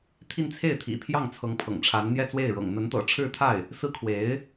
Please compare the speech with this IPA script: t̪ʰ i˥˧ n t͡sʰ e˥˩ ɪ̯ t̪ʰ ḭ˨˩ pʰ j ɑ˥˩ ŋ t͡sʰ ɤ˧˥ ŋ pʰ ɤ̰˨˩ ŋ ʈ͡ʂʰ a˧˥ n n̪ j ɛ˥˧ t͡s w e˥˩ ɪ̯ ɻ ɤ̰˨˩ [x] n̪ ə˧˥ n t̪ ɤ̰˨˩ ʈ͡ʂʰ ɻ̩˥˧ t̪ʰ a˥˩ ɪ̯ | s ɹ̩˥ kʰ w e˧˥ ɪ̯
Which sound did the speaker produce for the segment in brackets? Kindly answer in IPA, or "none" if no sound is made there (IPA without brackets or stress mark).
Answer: ŋ